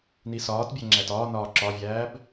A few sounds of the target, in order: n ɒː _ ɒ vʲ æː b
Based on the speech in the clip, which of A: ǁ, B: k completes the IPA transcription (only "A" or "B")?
A